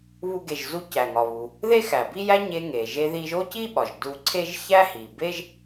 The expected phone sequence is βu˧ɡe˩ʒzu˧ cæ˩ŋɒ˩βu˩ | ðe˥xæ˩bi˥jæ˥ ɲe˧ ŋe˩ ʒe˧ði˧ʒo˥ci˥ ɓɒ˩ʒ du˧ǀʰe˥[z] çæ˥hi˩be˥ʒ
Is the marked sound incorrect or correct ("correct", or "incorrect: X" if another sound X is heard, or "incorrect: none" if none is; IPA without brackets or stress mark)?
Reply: incorrect: ʒ